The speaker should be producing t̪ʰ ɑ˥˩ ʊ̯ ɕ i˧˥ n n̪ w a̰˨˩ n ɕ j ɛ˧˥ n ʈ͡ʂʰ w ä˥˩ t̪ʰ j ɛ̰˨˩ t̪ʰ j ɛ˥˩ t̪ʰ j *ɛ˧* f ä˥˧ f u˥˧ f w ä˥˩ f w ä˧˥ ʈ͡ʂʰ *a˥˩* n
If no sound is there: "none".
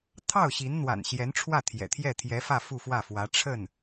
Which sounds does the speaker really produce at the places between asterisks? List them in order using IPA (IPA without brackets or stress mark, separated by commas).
ɛ˧˥, ə˥˩